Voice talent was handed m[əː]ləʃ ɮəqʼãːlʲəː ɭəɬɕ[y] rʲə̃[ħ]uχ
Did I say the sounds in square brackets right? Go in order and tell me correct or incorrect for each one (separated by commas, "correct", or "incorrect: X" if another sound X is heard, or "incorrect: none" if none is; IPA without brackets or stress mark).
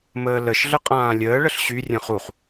correct, correct, incorrect: χ